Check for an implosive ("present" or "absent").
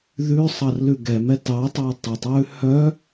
absent